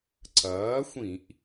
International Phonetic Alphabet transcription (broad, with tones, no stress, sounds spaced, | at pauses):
ǀ ɐː˩˥ xʷ ĩ˧˩˧ ʔ